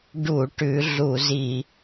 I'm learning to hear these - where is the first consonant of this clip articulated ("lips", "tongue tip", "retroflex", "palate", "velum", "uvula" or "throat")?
retroflex